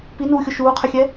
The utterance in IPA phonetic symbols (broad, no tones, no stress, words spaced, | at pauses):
pinuːxʲʊ ʃuːqʰɪxʲɛ